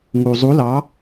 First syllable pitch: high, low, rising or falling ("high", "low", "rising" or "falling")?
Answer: low